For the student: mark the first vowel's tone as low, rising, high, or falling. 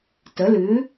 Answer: rising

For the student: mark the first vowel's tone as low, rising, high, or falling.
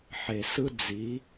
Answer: low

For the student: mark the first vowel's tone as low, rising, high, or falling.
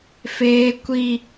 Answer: high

